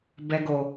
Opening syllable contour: high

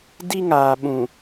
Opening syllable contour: high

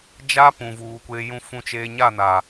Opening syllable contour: high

